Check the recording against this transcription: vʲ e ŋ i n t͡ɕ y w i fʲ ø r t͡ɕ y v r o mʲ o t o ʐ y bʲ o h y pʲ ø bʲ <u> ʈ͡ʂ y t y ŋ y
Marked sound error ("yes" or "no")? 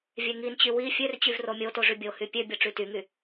yes